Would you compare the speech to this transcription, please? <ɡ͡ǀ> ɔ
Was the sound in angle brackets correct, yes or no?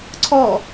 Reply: no